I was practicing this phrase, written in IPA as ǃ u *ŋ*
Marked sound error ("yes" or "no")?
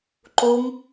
no